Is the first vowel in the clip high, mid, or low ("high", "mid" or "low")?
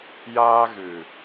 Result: low